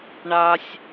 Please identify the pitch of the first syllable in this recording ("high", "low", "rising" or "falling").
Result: high